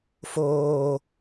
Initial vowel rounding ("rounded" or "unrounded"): rounded